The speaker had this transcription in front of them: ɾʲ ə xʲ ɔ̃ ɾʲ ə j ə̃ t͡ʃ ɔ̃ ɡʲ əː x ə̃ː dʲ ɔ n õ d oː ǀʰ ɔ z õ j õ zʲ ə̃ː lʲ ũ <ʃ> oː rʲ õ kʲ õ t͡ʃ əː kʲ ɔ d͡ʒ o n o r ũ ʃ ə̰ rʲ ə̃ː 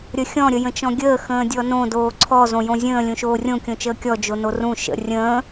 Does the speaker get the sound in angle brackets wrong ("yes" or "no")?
no